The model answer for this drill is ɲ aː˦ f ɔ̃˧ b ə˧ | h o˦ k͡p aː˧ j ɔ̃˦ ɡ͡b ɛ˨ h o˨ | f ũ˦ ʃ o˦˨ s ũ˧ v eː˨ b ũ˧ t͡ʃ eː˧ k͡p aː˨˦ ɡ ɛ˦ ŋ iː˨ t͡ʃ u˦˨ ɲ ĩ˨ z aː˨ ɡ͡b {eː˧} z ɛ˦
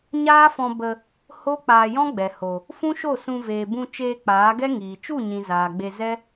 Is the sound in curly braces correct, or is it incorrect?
incorrect